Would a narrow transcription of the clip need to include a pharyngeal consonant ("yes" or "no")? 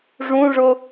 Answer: no